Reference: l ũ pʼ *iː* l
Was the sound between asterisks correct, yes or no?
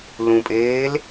no